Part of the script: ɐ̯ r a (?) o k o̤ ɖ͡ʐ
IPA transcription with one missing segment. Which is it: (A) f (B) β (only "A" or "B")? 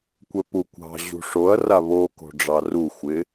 B